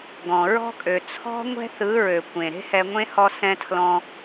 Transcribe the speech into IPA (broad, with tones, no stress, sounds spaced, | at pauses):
ɡ ɔ̃˨ ɹ ɔ̤˦ kʼ ø˨ t͡sʰ ɔ̤˦ ŋʷ ɛ̤˦ θ ɯ˨˦ ɹ ø˨ kʷ ẽ˨ ɾ e̤˦ h ɛ˧ ŋʷ ẽ˦ h ɔ˦ s ɛ̃˦ tʰ l ɔ̃˦